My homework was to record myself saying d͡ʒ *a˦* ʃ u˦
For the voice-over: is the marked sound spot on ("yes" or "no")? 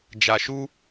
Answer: no